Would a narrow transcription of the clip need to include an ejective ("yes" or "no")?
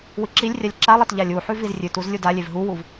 no